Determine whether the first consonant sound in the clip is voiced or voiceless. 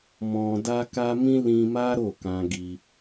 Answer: voiced